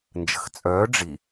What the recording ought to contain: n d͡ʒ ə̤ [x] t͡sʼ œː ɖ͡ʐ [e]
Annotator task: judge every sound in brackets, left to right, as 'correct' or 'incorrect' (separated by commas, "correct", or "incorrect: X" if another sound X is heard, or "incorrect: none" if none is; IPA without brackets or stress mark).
correct, incorrect: i